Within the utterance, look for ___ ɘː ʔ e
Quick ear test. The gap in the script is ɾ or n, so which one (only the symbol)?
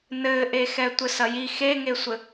n